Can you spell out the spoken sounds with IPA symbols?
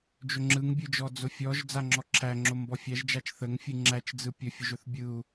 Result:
d͡ʒ ɵ ŋ͡ǁ ɯ ŋ bʲ ɯ d͡ʒ ɔ d͡z ʊ fʲ ɔ ʒ d͡z a ŋ͡ǁ ɔ ǁʰ æ ŋ͡ǁ o m b ɔ fʲ æ ʒ d͡ʒ a t͡ʃ θ ə ŋ fʲ ɯ ŋ͡ǁ æ t͡ʃ d͡z ɯ pʲ ɵ fʲ ʊ ʒ ɵ θ bʲ ɯ u̯

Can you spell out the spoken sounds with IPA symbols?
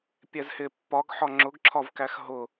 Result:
pʲ ɛ z h ɪ pː ɒ ɡ ħ ɒ ŋ͡ǁ ʊ ɡ ǁʰ ɒ v k æ x ɦ ʊ

